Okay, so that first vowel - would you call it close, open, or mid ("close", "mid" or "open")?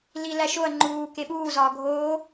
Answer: close